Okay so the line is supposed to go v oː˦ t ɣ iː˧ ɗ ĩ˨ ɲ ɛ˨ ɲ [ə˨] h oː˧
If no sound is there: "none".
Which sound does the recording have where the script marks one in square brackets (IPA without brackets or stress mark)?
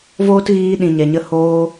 ə˧